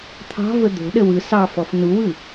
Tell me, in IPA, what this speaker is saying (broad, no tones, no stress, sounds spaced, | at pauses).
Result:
t̪ʰ ɑ̤ v ə d̪ o̤ ɗ ə w ɯ s ɑ f ɔ f n u w ɯ